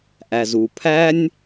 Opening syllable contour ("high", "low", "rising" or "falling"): low